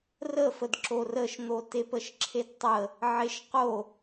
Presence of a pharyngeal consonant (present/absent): present